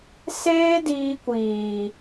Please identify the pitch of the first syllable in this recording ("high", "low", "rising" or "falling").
high